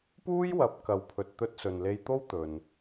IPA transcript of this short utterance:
p uː˥ j w ɐ˨˥ p̚ k ɐ˨ w pʰ ɵ˨ t̚ t̪ ɵ˧ t̚ s ɵ˨ n l e˧ j t̪ o˥ w t̪ ɵ˨ n

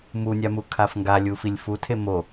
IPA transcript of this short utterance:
m u nʲ a m u kʰ a f ŋ ɡ a lʲ u f i lʲ f u tʰ e m o

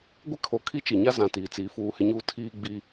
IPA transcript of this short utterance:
ɡʷ ɪ˦ kʰ o˨ kʰ i˦ t͡ʃ i˨ ɲ a˦ z ã˨ t iː˨ t͡s iː˨ f uː˦˨ h ɪ˦ ɲ uː˦ tʰ iː˦ ɡ͡b i˦

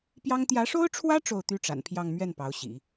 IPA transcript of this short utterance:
p j ɑ˥ ŋ t̪ j ä˧˥ ʂ o˥ ʊ̯ ʈ͡ʂʰ w ä˥ ʈ͡ʂ o˥˩ ʊ̯ t̪ y˥ ʈ͡ʂ a̰˨˩ n pʰ j ɑ˥˧ ŋ m ɥ ɛ˥˩ n p ɑ˧˥ ʊ̯ ɕ ḭ˨˩˦

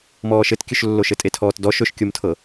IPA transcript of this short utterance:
m ɔː ʃ ɘ t kʲ ɵ ʃ lː o ʃ ɘ tʼ e tʰ ɔː t d ɔ ʃ ɵ ʃ kʲ o m tʰ ɤ

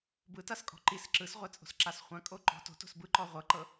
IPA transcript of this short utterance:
b ɯ t a s kʼ ɔ̤ ǃ i s ǁ ɯ s ʁʷ ɛ t͡sʼ o̤ s ǁ a s χʷ ã kʼ o ǃ ɔ̤ t o̤ t o̤ s b ɯ ǃ ɔ ʁʷ ɤ ǃ ɤ

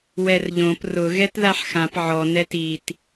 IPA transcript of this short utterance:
w ɛ r ʎ õ p r ʊ ɣ ɛ t ð a ħ x ã p ʕ ɔ n ɛ t i t

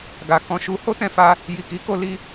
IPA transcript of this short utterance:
ɡ a˨ k ɔ̃˧ ʃ u˧ h o˦ t ɛ̃˧ f a˧ | j i˨ k i˨˦ k o˧ l i˧

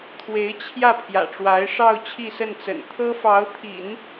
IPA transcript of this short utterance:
t̪ʰ w e˧˥ ɪ̯ t͡ɕʰ j ä˥˩ pʰ j ä̰˨˩ ʈ͡ʂ w a˧˥ ɪ̯ ʂ ɑ˥˧ ʊ̯ t͡ɕʰ i˥˧ s ə˥˩ n t͡s ə̰˨˩ n t̪ʰ ɤ˥ f ɑ˧˥ ʊ̯ t̪ʰ ḭ˨˩˦ n

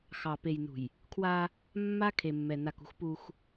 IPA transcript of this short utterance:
x ɑ˨ p e˨ j n ṳ˨ j | kʰ w a˦ | mː a˦ kʰ e˨ mː ɛ˨ n a˨ k ṳ˦ x p u˦ x

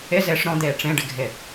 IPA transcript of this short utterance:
ɪ z ɪː ʂ ɾ ɔ̃ d̪ eː ʈ͡ʂ ẽ ɖ ɪ ɡʱ ɪ

